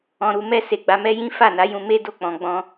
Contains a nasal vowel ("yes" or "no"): yes